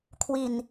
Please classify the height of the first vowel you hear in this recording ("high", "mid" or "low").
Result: high